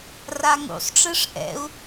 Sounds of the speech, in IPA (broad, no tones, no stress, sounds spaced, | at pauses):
r a ŋ ṵ sˤ ʈ͡ʂ ɯ ʂ ʔ ɛ̰ u̯